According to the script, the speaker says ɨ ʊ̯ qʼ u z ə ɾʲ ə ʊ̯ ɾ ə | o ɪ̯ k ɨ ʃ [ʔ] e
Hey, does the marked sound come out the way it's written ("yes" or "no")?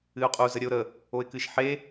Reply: no